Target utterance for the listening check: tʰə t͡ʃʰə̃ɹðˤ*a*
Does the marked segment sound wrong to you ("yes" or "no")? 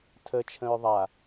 no